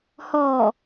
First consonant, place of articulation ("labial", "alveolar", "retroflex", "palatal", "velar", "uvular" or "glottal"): glottal